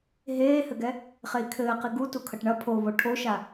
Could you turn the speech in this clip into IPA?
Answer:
ɦ eː h ɘ ɡ ɛ | χ e i̯ kʰ ɘː q i ɡ u t u kʰ ɐ ʈ ɳ ɐ pʰ o β o ʈʰ o ʃ a

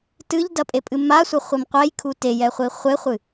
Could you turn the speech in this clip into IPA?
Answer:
t ɨ ʎ d ɐ pʼ e pʼ ɨ m a sʷ ɐ χʷ i m qʷ ɛ j kʰ u t e j ɛ χʷ i χʷ e χʷ ɨ

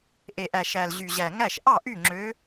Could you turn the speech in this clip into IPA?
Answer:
ʔ e˨ ʔ æ˨ ʃ æ˨ l ʑ y˨ ʑ æ˨ ŋ æ˥˨ ʃ ʔ ɑ˥˨ ʔ y˥˨ ŋ͡ǁ ø˧˥

